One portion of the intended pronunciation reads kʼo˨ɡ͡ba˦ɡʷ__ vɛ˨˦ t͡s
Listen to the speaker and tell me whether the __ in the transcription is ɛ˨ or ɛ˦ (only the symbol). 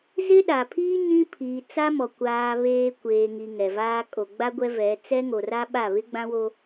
ɛ˦